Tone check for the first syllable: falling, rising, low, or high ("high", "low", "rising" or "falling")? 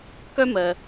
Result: high